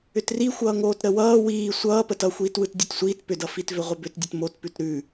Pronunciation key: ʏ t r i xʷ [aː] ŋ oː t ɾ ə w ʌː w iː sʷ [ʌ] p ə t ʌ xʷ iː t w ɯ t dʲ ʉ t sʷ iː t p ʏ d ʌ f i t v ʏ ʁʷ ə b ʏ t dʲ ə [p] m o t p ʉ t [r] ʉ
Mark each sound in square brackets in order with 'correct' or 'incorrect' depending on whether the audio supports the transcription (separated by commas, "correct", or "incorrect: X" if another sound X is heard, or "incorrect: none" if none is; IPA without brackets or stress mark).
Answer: incorrect: ʌː, incorrect: ʌː, incorrect: t, incorrect: ɾ